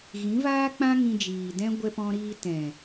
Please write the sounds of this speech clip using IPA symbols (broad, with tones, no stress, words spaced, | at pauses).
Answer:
ɣĩ˨˦vaː˦k͡pã˦ ŋĩ˧d͡ʒiː˨dɛ̃˦ ɡʷɛ˦pɔ̃˦ɾiː˦ tɛ̃˨